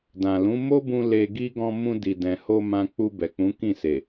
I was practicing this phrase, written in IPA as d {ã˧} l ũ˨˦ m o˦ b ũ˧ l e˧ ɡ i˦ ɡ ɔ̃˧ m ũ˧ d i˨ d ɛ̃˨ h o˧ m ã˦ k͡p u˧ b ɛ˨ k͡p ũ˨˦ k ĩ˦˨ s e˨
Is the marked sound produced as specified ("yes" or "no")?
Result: no